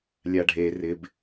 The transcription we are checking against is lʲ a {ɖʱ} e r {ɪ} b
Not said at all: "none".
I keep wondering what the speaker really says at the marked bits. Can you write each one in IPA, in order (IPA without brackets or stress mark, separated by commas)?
ɖʱ, ɪ